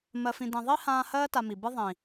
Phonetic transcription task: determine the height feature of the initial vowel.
mid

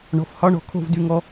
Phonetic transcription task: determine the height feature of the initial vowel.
mid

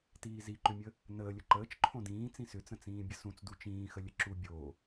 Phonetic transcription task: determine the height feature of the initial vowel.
high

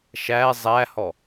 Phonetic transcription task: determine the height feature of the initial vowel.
low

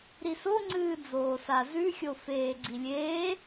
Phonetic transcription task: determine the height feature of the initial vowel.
high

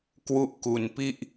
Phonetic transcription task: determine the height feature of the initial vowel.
high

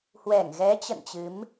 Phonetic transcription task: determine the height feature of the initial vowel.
mid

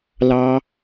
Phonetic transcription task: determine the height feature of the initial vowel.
low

